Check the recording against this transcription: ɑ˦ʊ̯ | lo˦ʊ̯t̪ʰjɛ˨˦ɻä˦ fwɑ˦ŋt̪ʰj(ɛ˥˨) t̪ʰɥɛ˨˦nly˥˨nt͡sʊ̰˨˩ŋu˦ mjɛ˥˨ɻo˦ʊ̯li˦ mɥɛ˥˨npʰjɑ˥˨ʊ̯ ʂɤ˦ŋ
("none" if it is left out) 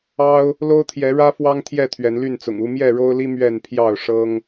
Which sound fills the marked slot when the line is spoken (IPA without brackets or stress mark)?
ɛ˥˨